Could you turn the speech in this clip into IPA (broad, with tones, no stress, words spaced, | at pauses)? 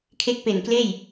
kʰe˦˥k̚pe˨˩nkleː˥˩j